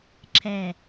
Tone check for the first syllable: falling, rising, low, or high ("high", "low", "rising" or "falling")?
low